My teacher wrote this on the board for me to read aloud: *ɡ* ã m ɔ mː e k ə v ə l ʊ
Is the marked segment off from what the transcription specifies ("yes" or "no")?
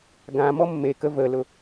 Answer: no